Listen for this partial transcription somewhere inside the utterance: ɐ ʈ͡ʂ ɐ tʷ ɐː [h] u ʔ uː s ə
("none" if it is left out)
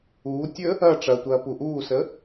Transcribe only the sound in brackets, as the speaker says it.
p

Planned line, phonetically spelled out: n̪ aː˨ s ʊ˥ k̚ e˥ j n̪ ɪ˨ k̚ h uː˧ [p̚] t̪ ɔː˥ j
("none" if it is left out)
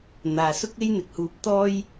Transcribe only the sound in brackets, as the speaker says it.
p̚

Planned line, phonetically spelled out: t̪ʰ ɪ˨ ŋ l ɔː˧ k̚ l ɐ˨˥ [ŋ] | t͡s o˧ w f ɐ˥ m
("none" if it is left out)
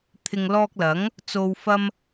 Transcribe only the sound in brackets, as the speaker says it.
ŋ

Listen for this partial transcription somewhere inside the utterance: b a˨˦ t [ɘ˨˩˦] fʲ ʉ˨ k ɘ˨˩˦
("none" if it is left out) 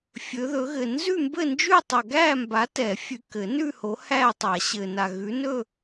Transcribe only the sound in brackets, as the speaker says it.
ɛ˨˩˦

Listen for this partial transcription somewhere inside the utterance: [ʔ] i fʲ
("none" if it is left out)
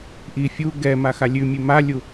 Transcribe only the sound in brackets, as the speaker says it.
ʔ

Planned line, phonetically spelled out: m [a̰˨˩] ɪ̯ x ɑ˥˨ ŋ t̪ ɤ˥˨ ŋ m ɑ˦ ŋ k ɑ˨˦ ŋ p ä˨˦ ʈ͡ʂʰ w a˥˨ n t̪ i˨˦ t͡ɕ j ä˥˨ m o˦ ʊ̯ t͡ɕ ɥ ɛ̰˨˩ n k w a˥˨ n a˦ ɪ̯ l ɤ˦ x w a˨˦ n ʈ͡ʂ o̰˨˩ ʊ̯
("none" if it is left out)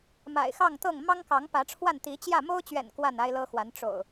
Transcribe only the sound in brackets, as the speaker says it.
a̰˨˩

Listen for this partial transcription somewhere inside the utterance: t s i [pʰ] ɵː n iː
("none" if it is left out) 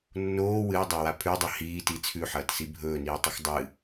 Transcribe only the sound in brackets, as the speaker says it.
bʱ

